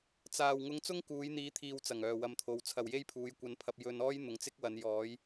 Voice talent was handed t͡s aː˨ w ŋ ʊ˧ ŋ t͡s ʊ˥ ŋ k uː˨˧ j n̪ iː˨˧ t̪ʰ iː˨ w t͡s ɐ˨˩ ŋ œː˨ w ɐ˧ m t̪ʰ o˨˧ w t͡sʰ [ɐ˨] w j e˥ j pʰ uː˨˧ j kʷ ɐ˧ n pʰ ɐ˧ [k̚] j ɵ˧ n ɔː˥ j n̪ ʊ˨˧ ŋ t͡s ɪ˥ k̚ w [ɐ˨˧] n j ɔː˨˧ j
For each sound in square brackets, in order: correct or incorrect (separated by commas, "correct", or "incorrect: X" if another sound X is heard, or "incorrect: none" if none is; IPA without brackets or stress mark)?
correct, incorrect: p̚, correct